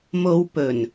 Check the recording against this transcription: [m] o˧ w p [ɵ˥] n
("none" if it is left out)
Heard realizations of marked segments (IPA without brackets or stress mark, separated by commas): m, ɵ˨˩